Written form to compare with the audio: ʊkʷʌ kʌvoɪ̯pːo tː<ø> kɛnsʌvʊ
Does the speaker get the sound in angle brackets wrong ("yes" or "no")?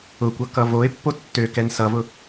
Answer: no